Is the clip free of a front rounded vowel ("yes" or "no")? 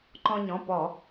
yes